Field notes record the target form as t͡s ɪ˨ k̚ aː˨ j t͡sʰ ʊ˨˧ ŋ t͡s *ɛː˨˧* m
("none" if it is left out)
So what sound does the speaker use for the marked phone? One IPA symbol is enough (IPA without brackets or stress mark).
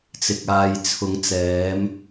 ɛː˨˧